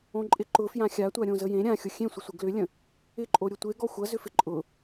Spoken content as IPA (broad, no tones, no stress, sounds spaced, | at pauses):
õ ǃʼ ɪ ǃ ʊ f j ã xʲ a tʷ a ɾʲ õ z ə j ẽ ɾʲ ã xʲ ʊ xʲ ẽ sʷ ə sʷ ɪ ɡ l ʏ lʲ ə̃ | ɪ ǃʼ o ɾʲ ʊ tʷ e ɡ ɔ xʷ ɐ z ʏ f ɪ ǃʼ ʊ